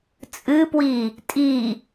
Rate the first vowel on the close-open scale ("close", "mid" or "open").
close